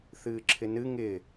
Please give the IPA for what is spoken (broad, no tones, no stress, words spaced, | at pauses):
θɨːǁʰɪnɨ ŋɪ